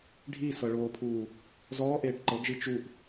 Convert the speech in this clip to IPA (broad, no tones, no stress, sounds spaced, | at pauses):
ɖʱ iː s ɤ ɭ oː pʰ uː | z ɔː ʔ eː ʈ ǃ ɤ ɡ ʒ i t͡ʃ u ʔ